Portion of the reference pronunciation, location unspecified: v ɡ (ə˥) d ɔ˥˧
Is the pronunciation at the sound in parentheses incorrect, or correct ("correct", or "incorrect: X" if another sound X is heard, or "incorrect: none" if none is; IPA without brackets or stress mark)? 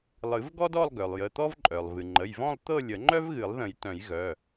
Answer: incorrect: ɔ˥